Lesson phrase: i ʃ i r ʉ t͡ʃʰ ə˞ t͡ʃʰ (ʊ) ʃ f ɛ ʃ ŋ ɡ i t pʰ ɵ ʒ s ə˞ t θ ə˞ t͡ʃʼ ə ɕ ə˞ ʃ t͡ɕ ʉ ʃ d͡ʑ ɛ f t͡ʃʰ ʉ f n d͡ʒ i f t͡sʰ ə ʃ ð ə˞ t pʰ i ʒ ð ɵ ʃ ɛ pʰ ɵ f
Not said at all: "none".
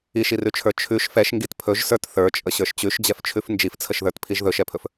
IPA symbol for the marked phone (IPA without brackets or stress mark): ʉ